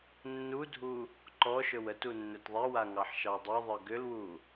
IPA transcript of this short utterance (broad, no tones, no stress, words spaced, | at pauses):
nːudʱu | ǃɔʃɵw ətu nːɵtðˤewa ŋɑħʃɑdˤɯðˤɯ ɡʏlwu